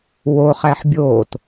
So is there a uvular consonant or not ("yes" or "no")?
yes